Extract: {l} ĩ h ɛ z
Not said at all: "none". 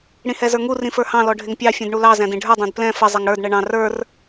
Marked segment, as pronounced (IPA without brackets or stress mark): ɽ